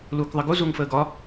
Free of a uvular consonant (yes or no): yes